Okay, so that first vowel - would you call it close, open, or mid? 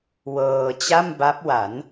mid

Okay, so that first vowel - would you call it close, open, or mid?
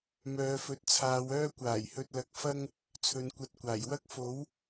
mid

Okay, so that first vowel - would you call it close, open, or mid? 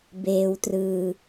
mid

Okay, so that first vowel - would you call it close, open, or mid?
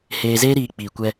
mid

